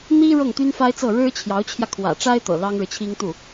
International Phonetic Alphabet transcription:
n̪ i˥ ɻ ɤ˥˩ ŋ t̪ y˥ n f a˥ ɪ̯ t͡s ɤ˥˩ ɻ ɻ̩˥ t͡ɕʰ j ɑ˧˥ ʊ̯ t͡ɕʰ j ä˧ kʰ w ä̰˨˩ ʈ͡ʂ a˥ ɪ̯ t̪ ɤ̰˨˩ l ɑ˥ ŋ ɻ ɻ̩˨ t͡ɕʰ i˥ ŋ t̪ u˥˩

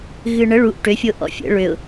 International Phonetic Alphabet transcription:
ɣ ɨ ɳ ə ɭ u ʔ ʈ ø fʲ o ʔ ɔ̰ fʲ ə̰ ɭ ø ʊ̯

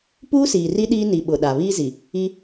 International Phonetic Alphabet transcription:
p uː˦ s iː˨ r i˦ ɗ iː˦ n i˨ ɓ ʊ˨ ɗ a˨ β iː˦ z i˨ | i˦

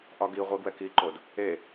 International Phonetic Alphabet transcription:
ʔ ɒ ɡ i ʁʷ e ɡ w ɛ k i ǃ o d | e

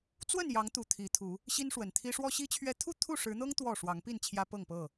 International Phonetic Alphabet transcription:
t͡s w ə˥˨ n j ɑ˨˦ ŋ t̪ u˨˩ t̪ʰ i˨˦ t̪ʰ u˨˦ | ɕ i˦ n ʂ w ə˨˩ n t̪ʰ i˦ ʂ w ɔ˦ ɕ i˦ t͡ɕʰ ɥ ɛ˦ t̪ʰ u˥˨ t̪ʰ u˥˨ ʂ ɻ̩˨˦ n̪ ɤ˦ ŋ t̪ w ɔ˥˨ ʂ w ɑ˨˦ ŋ p i˥˨ n t͡ɕʰ j ä˦ p ɤ˥˨ ŋ p ɤ˥˨

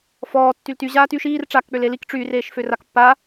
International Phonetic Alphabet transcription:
f ɔː tː y l t y ʑ aː t y ʃ iː r ʈ͡ʂ aː k k͡p ø l e l i k ʈ͡ʂ y r eː ʃ f ø r a k pː a

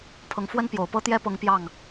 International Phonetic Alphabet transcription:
pʰ ɤ˧˥ ŋ f w ə˥ n p j o˨˩ ʊ̯ p ɤ˥ t̪ j ɛ˥ p ɤ˧˥ ŋ p j ɑ˥˩ ŋ

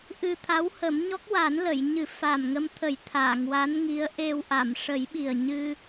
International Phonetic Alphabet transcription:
ʔ ɨ˧ t̪ʰ a˧˥ w h ə˨˩˦ m ɲ ɔ˦˥ k̚ w a˨˩˦ n l ə˨˩˨ j ɲ ɨ˨˩˦ f aː˨˩ m ŋ ə˧ m t̪ʰ ə˨˩˦ j t̪ʰ aː˨˩˨ ŋ w a˧˥ n ŋ i˧˥ ə̯ ʔ e˧ w ʔ a˨˩˨ m ʂ ə˨˩˦ j ɓ i˨˩ ə̯ ɲ ɨ˧

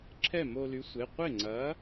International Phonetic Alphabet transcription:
ǁʰ ɛ˥˩ m o˧ l y˨˥ sʷ e˩˧˩ qʷ ɪ˥˩ ŋ͡ǀ ɐ˨˥

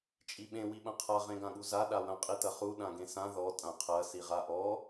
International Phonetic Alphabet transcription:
t͡ʃʼ i ɓ ẽ w i ɓ ɐ̃ qʰ a ʁ ẽ ɡ ã ɠ u z a ɗ a w ɐ̃ qʼ i t ɐ χ u ɗ ã ɡ ẽ s ã ð ɔ tʼ ã qʰ ɐ s i ʁ a ʔ ɔ

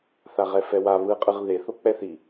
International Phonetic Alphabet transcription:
θ a ʁ ɛ f ɛ w a β ɯ qʼ ɯ ʁ ð e θ o k͡p ɛ θ i

